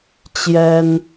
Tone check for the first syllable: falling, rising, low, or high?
high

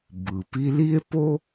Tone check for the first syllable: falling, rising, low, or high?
low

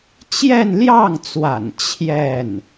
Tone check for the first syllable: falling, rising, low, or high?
falling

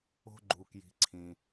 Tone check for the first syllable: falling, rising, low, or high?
high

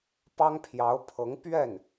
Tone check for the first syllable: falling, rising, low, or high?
high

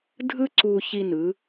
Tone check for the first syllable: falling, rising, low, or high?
high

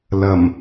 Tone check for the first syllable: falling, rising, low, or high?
low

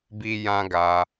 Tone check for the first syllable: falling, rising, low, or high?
high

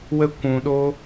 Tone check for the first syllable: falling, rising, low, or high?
high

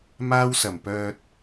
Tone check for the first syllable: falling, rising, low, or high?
high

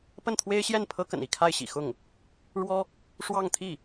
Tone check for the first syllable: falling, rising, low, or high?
falling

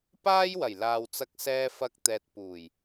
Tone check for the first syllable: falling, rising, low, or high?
high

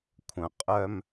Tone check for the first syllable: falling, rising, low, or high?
low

